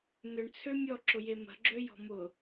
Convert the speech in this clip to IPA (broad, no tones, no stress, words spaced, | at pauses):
nʏɳt͡sʰø mʲɔǁʊje mə̤ɡ͡ǁøjɔ̤ mʊ